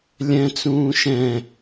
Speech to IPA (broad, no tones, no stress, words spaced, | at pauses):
lʲɛ̃ t͡sũːʃɛ̃